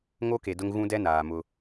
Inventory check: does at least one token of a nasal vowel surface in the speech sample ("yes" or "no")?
yes